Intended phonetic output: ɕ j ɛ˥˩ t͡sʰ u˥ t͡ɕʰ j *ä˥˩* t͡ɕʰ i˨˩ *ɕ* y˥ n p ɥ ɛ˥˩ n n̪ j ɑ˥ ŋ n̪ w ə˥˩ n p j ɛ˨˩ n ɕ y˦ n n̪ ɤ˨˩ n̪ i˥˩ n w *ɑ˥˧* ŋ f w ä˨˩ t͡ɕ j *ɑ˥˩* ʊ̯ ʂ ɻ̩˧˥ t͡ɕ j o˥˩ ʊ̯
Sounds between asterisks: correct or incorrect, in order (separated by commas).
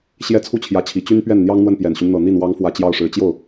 incorrect, incorrect, incorrect, correct